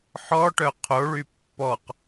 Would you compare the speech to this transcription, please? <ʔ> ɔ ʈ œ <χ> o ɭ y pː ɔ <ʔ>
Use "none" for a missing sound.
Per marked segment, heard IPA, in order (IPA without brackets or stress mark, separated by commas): ħ, qʰ, q